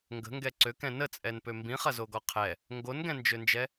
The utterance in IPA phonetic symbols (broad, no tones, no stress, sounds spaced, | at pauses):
ŋ ɡ ə̤ ŋ ɡ ɛ ǀ ø k ɛ̃ n ə t͡sʼ ɛ n p ø m b ĩ χ ɐ z o ɡ ɔ qʰ ɛ | ŋ ɡ o n ɡ ɛ̃ n d͡ʒ ø n d͡ʒ ɛ